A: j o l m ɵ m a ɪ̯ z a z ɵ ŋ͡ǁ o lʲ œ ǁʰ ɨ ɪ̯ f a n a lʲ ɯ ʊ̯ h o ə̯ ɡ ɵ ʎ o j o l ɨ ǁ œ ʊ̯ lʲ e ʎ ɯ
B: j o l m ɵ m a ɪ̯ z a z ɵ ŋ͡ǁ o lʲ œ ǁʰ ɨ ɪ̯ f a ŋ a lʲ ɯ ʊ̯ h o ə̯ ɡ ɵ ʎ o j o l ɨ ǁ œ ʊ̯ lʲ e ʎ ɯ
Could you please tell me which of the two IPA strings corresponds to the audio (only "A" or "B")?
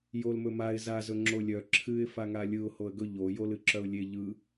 B